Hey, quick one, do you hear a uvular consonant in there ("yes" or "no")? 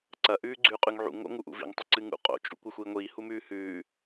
yes